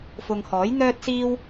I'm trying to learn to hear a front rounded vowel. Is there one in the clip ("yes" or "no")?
yes